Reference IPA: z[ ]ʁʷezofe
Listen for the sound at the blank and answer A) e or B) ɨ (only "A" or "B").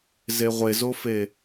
A